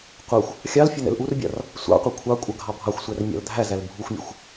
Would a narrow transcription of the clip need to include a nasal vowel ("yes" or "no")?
no